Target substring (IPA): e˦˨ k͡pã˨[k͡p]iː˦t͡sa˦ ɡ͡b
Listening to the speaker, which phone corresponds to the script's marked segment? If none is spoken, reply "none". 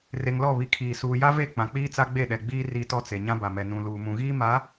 k͡p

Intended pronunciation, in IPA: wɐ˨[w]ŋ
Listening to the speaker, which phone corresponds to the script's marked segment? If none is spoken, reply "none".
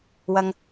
none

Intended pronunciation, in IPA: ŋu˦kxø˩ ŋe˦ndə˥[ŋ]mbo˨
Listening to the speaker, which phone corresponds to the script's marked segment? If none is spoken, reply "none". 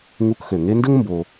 ŋ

